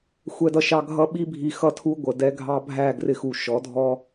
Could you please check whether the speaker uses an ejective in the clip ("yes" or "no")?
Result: no